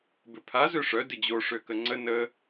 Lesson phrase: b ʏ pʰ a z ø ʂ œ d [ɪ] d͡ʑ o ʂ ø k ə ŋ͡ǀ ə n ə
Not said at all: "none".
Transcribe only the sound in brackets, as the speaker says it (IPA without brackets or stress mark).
ɪ